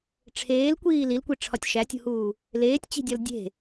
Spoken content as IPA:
ʈ͡ʂʰ eː l kʷ iː l i l kʷ i ʈ͡ʂʰ ɒ tʲ ʃ æ tʲ ṳ h uː | l eː tʲ t͡ɕ i̤ dʲ ɒ l dʲ e̤

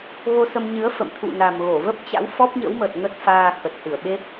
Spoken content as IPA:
ɣ o˧ s ə˧ m ɲ ɨ˨˦ ə̯ f ə̰˧˨ m t̪ʰ ṵ˧˨ n a˨˩ m ɣ o˧˩ v ə˦˥ p̚ t͡ɕ a̰˧˥ w f ɔ˦˥ p̚ ɲ ə̰˧˥ w m ə˨˩ t̚ ŋ ə˦˥ t̚ f aː˧ x ə˨˩ t̚ h ɨ˧˩ ə̯ ɓ e˦˥ p̚

